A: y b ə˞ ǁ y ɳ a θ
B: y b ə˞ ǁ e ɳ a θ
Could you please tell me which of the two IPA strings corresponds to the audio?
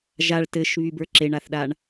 B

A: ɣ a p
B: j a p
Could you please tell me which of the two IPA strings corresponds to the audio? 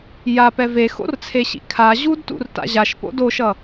B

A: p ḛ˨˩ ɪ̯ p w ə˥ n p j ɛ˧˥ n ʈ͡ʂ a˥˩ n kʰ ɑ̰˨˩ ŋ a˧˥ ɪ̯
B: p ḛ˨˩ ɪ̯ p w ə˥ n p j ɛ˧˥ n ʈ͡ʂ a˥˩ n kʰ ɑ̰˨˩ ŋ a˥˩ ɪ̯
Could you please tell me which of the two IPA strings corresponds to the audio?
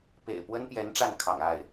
B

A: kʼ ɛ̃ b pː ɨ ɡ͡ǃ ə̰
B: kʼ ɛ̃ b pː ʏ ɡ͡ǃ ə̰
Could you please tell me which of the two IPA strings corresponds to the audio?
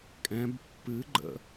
A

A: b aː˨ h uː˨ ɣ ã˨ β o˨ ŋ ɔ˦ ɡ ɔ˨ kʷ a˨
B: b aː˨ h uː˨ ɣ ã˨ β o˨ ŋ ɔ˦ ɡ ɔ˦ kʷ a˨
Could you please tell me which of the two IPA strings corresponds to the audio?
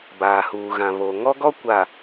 B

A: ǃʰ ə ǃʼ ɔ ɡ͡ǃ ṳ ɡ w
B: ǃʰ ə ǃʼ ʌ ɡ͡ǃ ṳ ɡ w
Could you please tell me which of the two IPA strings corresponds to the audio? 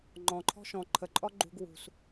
A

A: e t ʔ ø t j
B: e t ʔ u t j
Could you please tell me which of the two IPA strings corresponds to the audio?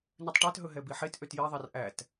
A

